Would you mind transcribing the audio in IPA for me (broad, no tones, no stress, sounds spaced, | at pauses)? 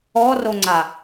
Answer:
ɔ r o ŋ͡ǀ a